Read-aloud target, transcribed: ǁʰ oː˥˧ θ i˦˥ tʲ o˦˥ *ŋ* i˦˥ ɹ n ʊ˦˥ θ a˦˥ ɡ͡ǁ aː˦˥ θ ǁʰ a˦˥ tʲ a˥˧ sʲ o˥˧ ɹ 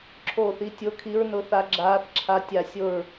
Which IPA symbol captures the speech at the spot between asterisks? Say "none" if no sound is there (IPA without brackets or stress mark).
kʰ